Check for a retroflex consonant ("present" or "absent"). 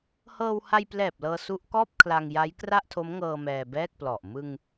absent